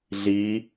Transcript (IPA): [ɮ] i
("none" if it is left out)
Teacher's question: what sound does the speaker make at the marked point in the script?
ɮ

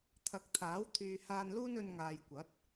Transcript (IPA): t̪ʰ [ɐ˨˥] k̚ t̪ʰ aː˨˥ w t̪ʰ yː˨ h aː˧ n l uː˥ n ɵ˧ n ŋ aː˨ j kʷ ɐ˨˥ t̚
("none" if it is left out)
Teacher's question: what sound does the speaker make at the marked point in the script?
ɐ˨˥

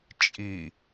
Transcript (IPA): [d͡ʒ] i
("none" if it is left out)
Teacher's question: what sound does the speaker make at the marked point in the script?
t͡ʃʼ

